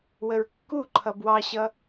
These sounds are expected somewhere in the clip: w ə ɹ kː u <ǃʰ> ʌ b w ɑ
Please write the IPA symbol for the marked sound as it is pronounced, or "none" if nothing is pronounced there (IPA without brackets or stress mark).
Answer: ǃʰ